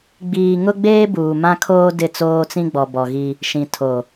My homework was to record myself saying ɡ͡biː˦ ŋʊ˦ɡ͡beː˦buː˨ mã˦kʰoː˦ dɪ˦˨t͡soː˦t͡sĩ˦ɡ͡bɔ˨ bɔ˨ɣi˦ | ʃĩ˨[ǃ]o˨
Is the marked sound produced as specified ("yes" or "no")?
no